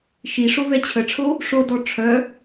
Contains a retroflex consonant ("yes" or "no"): yes